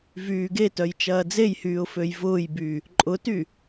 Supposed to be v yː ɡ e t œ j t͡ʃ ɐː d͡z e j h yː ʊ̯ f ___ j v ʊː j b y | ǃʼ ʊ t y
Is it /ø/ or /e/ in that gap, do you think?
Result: ø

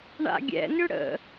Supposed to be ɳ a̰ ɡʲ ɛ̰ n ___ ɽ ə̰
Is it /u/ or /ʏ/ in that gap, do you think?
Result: ʏ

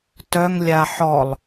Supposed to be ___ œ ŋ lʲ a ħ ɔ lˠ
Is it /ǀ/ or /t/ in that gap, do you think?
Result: t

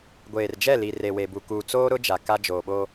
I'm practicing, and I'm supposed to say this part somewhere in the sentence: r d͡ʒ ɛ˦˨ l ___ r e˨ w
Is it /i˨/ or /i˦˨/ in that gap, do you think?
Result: i˨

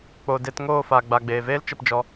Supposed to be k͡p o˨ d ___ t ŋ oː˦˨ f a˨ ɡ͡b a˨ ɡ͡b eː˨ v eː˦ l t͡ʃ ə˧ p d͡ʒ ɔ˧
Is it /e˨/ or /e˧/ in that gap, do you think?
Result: e˧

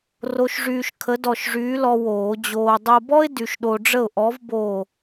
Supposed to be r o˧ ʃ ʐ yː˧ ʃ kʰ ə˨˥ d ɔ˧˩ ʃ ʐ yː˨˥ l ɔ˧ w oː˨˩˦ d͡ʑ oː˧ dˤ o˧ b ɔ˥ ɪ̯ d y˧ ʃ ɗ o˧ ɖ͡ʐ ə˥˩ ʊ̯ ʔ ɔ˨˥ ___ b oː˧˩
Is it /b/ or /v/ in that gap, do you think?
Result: v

